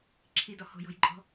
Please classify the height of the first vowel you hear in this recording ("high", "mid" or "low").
high